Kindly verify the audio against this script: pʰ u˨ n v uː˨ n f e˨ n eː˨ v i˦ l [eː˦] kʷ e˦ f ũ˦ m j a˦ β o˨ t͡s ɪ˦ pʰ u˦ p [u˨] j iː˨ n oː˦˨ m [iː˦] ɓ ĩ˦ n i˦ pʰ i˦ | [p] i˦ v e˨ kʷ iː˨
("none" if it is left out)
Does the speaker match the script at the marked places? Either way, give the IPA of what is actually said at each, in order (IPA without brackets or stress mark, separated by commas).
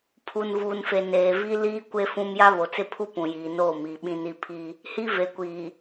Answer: iː˦, ũ˨, iː˨, h